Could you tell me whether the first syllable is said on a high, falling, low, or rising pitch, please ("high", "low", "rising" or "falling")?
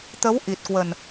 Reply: rising